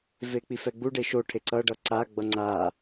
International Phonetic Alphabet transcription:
vek͡pifɛɡ͡bu ɖeʃo ʈʰeǀʌ ɖʌǀa ɡ͡bʌŋ͡ǀa

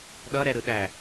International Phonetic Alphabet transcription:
ɗʌɾɛɾɯɗæ

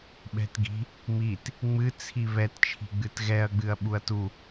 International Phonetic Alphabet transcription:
ɓɛ̤tɡi̤ | mit | ŋ͡mɨt͡sʰi βɛtt͡ʃʰi̤ɡ͡bɨt ɣɛɐ̯ɡ͡bɨɐ̯ ɓuɐ̯tu

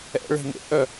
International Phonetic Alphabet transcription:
ɛ̰ ɭe̤nḛʔœ

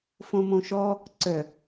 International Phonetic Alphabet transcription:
fõmõʃɔ | ǀœ

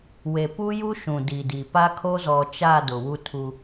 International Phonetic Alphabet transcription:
we˨pu˦ju˦ ʃũ˨ di˨di˨ pa˦kʰo˦zɔ˨t͡ʃa˦˨ dʊ˨wu˦tʰu˦

